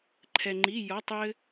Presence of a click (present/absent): present